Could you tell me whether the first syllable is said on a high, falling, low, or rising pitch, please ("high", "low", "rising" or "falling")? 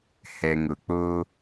low